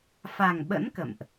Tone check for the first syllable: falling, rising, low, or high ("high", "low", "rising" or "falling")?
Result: low